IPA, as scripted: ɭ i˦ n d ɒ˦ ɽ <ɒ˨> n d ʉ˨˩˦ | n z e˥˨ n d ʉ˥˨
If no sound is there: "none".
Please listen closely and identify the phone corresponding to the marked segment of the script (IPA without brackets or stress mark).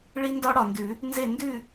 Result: ɒ˨